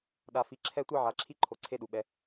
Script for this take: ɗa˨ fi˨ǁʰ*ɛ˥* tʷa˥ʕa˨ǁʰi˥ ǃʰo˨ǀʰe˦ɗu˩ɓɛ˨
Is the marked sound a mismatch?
yes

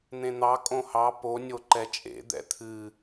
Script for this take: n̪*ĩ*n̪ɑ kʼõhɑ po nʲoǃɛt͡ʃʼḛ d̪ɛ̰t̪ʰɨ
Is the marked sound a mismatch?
yes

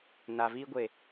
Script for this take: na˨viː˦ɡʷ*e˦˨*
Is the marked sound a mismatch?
no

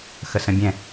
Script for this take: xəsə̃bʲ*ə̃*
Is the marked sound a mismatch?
yes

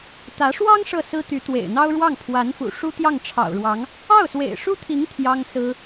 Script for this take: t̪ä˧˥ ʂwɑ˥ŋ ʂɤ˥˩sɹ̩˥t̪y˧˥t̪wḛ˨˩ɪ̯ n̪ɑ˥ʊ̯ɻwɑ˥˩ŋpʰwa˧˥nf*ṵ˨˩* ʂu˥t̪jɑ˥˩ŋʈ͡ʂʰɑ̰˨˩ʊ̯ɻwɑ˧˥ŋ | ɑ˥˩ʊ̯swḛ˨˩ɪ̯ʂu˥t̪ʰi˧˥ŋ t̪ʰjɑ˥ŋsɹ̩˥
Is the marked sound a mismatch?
no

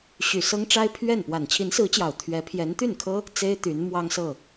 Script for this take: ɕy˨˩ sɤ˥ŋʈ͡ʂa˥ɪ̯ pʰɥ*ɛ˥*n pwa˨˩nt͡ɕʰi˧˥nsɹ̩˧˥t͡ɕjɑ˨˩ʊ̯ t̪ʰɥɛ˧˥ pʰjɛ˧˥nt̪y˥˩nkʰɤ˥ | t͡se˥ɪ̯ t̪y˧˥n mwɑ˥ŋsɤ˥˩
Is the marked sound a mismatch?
yes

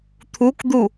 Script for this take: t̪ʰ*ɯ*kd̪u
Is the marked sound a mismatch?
yes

